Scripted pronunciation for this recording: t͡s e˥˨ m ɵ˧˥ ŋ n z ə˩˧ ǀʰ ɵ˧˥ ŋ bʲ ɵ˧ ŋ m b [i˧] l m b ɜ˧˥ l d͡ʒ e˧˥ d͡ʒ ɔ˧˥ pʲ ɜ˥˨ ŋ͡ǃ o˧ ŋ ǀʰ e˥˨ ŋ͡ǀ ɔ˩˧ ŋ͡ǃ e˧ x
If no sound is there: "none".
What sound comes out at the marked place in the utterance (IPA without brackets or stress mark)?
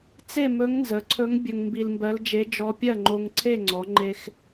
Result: i˧